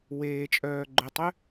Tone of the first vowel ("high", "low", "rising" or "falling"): low